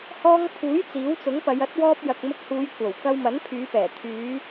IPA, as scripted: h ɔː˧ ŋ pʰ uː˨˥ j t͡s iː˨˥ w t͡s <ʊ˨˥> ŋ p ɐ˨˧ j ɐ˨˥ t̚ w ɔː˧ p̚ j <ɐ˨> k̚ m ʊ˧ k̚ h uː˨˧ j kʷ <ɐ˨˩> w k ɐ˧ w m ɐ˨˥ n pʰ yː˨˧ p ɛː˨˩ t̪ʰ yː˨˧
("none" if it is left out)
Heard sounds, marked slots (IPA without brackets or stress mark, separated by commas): ʊ˨˥, ɐ˨, ɐ˨˩